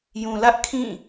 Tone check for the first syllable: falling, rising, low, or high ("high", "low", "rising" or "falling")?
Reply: low